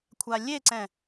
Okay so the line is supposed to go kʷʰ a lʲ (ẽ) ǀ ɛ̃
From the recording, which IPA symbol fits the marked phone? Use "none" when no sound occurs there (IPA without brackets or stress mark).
e